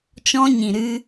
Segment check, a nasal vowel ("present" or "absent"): present